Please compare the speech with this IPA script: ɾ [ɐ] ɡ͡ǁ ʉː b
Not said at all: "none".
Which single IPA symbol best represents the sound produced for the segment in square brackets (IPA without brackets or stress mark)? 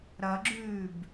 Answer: ɐ